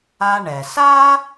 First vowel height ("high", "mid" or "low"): low